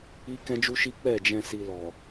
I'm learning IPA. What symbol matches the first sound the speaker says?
i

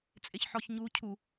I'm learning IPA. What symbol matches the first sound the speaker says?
t͡sʼ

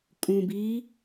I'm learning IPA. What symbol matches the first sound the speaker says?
kʼ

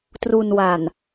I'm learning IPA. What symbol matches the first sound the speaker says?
t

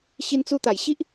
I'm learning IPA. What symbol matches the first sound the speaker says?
ɕ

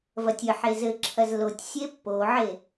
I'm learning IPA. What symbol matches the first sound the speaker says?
v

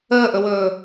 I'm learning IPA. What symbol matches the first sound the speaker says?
əː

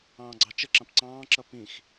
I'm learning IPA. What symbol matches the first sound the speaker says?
ɑ̃ː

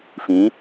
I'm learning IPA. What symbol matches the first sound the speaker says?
f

